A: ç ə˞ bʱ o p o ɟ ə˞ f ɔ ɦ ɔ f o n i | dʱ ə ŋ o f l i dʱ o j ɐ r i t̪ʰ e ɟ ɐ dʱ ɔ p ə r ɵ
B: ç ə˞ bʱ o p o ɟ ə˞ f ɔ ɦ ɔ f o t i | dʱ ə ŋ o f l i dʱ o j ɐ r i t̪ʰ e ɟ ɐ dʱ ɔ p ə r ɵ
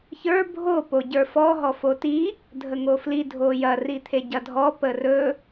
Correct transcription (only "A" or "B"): B